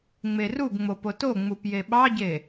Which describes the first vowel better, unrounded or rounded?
unrounded